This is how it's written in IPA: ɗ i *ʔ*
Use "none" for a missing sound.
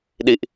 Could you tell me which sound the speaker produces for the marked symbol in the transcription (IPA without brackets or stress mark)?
ʔ